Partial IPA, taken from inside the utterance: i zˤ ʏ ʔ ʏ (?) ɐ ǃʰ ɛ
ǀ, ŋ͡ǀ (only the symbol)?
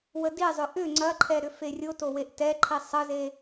ŋ͡ǀ